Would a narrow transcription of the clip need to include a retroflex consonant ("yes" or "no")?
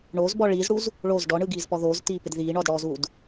yes